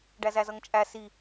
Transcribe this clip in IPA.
ɖæzæzʌŋt͡ʃʼæ si

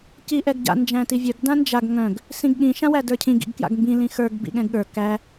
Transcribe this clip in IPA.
ciʔɛɡɟa̰ nd͡ʒæ̃tivʲœɡ dãnd͡ʒaɡ ŋœ̃ɡ | sĩɡɠĩ ʃãwædə˞cʰĩ ɡḭɡkja̰ɡmbĩ lĩxə˞ɡ bḭɠɛ̃ɡɠə˞ kæ

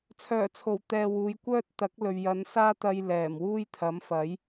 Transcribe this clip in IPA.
t͡sʰœː˨˩t͡sʰo˨˩w t̪ɛː˧wuː˨˧j kʷœː˥t̚t̪ɐ˨˥k̚ lɵ˨ɥjɐ˨˧n saː˥t̪ɐ˧j lɛː˨˩mwuː˥jt̪ʰɐ˨˥m fɐ˨˥j

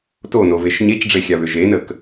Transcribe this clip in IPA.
tonoveʃ ɲecɖ͡ʐexʲaβʏ ʒenək

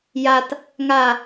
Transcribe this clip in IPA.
jat | ŋa

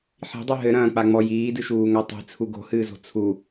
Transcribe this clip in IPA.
ħi̤dˤu ɦɘɾɐ̃ːk͡paŋ͡mɔ jiːdɨʃuːŋa tˤi̤t͡sʰu ɡo̤hɨːzo̤ t͡sʰu

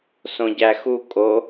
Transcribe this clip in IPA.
sõɟæxu kʼo

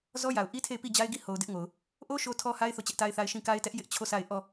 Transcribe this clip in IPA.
zɔ˦ja˨ʊ̯ʔi˦tʰe˦˨ɪ̯ pi˦˨d͡ʑa˦ɪ̯ɡi˦˨ ho˨ʊ̯ dɪ˦ʔŋo˨ʊ̯ | ʔo˦ ʃo˦tʰɔ˦ha˦ɪ̯ θo˦˨t͡ɕɛ˦ʔta˦ɪ̯θa˦ɪ̯ ʃĩ˦˨ka˦ɪ̯tɛ˦ʔ jɪ˦ʔ t͡ɕʰo˦˨sa˦˨ɪ̯ ʔɔ˦˨

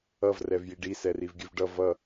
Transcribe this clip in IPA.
ʌv rɛvjiɖi sɛrivɡʲʉvɖʌ vʌ

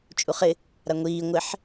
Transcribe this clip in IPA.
t͡ʃʼuχɪ | ɾaŋʷiː ŋʷɪħ

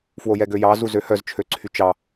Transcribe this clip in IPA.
fwojɛɡøjɑ zuzøhœz t͡ʃʰøǀʰyt͡ʃɑ

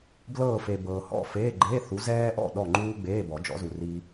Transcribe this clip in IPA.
blɤː˥˨fe˨ bɤː˨hɔ̰˥˨feː˧˥˧ ɡ͡ǃe˧˥˧ θu˨˥zɛː˥ʔɔ̰˥˨ ɗɔ˥˨ŋ͡ǃuː˥ ɡ͡beː˧˥˧bɔ˨˩˦d͡ʒɔ̰˨˥zu˨ ri˥

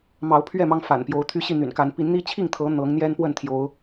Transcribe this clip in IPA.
mɑ˨˦ʊ̯pʰɥɛ˥˨ mɑ˦ŋfa̰˨˩npjo˨˦ʊ̯ t̪ʰy˦ɕi˥˨n̪y̰˨˩n ka˨˦n pi˨˦nn̪i˦t͡ɕʰi˥˨ŋt̪ʰɤ˨˦ n̪ɤ˨˦ŋ n̪jɛ˦npwə˥˨n t̪ʰjo˨˦ʊ̯

